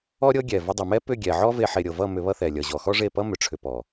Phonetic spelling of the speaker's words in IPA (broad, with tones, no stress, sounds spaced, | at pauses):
ɔ˦ ɾʲ ɤ˦ ɡʲ ɛ˨ v ʌ˧ dˤ ɛ˨ m ɛ˦ p ʏ˦˨ ɡʲ ɛ˨ ʕ ɔ˦ v e˧ ħ e˨ ɾʲ ɤ˨ v ʌ˦˨ m ʏ˧ β ʌ˦ θ ɛ˨ lʲ ʌ˨ ʑ ɔ˨ x ɔ˦ ʐ e˦˨ p ʌ˦ m ʏ˨ ʈ͡ʂʰ ʏ˨ p ɔ˨